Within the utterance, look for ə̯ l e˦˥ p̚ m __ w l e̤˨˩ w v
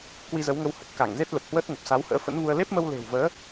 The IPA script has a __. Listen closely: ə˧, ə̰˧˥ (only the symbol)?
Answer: ə˧